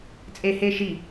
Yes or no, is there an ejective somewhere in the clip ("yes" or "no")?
yes